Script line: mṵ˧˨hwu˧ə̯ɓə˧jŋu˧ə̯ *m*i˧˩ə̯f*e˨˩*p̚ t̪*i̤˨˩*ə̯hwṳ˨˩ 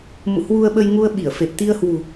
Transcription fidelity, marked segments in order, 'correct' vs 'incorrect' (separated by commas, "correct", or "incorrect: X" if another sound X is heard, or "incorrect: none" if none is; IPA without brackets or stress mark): incorrect: ɓ, correct, incorrect: i˧